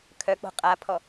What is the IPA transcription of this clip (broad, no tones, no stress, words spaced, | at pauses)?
kʰœk͡po̤ qʼapʰɔ